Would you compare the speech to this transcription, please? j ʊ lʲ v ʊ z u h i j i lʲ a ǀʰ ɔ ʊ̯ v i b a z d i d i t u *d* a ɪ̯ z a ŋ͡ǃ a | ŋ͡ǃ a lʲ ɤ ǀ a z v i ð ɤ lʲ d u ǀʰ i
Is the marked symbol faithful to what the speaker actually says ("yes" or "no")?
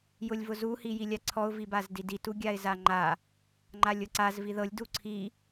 no